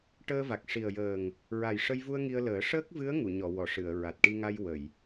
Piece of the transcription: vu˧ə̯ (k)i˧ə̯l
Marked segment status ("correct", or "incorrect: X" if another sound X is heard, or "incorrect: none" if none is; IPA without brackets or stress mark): incorrect: ŋ